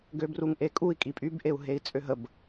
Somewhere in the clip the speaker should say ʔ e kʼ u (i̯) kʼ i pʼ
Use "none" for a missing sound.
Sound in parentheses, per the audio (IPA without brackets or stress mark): i̯